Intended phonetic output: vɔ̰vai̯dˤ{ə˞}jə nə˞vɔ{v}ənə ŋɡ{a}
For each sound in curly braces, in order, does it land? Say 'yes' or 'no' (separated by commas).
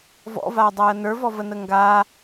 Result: no, yes, yes